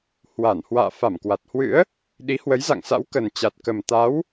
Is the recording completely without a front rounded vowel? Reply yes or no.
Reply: yes